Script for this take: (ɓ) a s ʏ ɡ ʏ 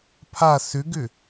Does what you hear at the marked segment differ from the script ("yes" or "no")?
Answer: yes